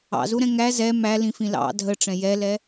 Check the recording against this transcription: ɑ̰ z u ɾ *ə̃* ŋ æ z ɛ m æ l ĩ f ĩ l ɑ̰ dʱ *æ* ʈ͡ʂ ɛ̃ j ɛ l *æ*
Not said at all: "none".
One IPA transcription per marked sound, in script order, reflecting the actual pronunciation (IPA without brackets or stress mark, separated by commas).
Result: ɛ̃, ə, ɛ